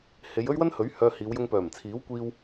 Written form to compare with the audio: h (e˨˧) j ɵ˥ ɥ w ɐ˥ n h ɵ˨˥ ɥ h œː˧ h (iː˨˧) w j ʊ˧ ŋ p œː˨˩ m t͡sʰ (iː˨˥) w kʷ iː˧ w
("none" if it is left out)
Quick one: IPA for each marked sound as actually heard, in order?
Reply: e˨˧, iː˨˧, iː˨˥

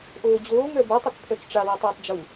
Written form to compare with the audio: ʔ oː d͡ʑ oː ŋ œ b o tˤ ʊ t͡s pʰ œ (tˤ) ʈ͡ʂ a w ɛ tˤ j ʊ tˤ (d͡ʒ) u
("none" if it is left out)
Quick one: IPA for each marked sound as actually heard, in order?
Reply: t͡s, d͡ʒ

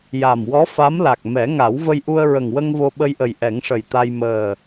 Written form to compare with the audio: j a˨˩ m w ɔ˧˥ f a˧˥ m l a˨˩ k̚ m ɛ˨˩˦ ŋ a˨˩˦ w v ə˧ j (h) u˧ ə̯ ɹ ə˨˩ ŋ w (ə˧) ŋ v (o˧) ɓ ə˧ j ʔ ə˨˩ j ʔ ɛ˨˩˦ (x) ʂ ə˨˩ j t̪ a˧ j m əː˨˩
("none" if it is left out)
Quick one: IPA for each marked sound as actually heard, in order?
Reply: ʔ, ə˧, o˧, ŋ

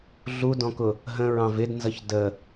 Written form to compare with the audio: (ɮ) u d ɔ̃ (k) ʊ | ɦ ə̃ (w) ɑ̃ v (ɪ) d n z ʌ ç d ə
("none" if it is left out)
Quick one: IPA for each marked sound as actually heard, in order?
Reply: ɮ, k, ɹ, ɪ

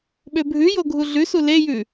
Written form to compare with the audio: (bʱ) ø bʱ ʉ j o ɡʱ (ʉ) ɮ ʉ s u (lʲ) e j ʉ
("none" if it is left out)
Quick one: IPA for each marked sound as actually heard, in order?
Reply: ɓ, u, l

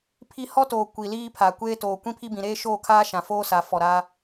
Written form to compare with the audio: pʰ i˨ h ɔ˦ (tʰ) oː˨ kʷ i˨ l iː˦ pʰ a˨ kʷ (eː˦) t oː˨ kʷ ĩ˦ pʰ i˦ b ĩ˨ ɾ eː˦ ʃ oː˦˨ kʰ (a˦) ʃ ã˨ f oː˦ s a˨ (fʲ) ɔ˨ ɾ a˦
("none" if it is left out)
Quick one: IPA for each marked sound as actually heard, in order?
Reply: t, eː˦, aː˦, f

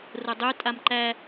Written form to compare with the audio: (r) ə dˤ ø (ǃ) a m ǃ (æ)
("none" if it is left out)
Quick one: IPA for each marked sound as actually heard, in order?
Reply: r, tʼ, æ

